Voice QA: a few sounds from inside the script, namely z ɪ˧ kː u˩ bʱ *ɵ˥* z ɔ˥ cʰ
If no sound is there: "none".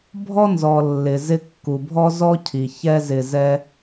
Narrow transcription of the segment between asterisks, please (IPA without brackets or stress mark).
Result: ɔ˥